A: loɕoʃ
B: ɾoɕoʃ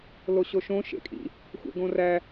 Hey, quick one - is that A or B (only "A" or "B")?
A